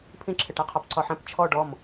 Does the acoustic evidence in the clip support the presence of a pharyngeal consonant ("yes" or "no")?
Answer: yes